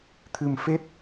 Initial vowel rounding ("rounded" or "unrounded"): unrounded